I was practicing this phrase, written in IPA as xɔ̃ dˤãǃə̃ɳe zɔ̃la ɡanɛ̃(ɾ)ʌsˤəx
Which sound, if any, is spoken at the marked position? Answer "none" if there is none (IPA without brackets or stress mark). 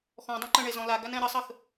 ɾ